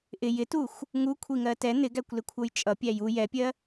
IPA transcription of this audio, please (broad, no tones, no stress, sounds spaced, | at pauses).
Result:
ʔ ɪ j ɪ t u xʷ | ŋ u kʷʰ i ŋ ɜ t ɛ n̪ ɪ ɡ æ kʷ l ɪ kʷʰ ʌ j t͡ʃʼ ʌ pʲ æ j u j ɛ pʲ ɜ